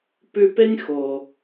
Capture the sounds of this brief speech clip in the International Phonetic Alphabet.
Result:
pʉ˧pe˦nʲ xo˨

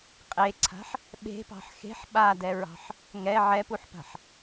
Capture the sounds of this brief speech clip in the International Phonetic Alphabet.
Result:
qʼeǀʰa̤ħ | ɓe̤pɑ̤ħ xe̤ħ ɓadɛɹɑ̤ħ | ŋɛ ʕɛpuħpa̤ħ

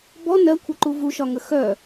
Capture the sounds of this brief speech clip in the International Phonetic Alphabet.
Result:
bɔ nɜkʷʰəǃu vuʃɒŋə xœ

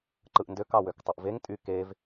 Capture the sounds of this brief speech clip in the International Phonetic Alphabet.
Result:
ǃɯʔndøk ɑwøktˤɯʔveŋ tʼy kev

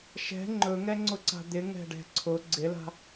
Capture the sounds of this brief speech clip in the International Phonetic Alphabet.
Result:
ʃɛ̤ ŋ͡ǃɵŋɛŋ͡ǀʊǀa̤ d̪ɪŋɛ̤ɖɛ̤ ǀʰʊ ɡ͡ǀɪla̤

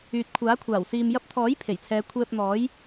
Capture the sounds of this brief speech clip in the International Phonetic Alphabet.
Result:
yː˨t̚kʷʰaː˨˥ kʷʰaː˨˩wsiː˨m jɐ˧p̚t̪ʰɔː˨˥j pʰe˨˩jt͡sʰɛː˨˧ kʷʰɛː˧p̚n̪ɔː˨˥j

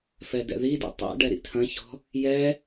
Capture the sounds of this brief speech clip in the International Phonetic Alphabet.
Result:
fɛdɛ̰ðidḭ tˤɛ̰ ɖɛɾḭtʰɐ̃çɔ̤ | jɛ

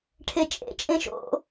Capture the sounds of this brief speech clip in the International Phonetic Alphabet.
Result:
ʈʰet͡ʃʼḛ t͡ʃʼẽʃo̰

